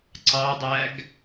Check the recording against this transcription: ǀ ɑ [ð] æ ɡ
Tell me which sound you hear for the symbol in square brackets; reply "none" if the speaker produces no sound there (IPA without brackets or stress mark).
dˤ